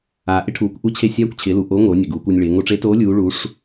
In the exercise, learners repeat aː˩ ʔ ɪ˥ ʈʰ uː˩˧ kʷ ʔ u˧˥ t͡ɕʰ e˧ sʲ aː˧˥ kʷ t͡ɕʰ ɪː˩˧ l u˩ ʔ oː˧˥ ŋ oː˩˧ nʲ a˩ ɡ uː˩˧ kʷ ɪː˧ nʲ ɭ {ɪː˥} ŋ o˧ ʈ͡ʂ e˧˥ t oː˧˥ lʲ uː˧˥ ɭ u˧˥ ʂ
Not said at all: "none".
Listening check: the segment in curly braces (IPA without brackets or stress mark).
ɪː˩˧